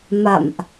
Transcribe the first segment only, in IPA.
m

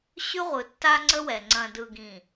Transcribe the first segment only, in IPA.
ɕ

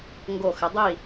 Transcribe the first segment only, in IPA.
ŋ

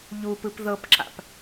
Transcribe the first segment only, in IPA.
ʎ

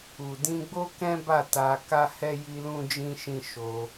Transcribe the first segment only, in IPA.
u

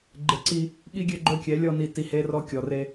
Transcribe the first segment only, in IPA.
ɡ͡ǃ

